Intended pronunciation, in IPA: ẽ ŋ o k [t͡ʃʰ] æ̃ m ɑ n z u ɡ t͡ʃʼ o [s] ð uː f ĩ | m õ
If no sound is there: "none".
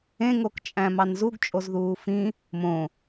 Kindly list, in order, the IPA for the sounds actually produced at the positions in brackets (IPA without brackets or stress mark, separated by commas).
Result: t͡ʃʼ, z